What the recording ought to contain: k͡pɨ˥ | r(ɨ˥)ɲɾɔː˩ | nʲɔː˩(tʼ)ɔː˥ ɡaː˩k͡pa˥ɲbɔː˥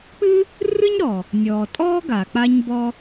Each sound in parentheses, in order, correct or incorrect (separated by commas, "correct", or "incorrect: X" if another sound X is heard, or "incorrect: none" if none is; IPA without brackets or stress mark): correct, correct